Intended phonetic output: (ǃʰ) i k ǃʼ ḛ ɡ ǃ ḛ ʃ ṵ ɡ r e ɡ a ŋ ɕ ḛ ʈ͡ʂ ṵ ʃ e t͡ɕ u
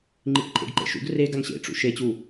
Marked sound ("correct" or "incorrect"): incorrect